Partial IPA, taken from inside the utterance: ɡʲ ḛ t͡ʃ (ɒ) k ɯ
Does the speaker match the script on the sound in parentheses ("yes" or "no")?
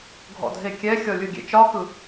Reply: yes